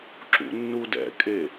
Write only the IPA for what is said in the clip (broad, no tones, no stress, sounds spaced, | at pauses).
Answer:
ǁ ṵ nː u d ɛ̰ kʼ e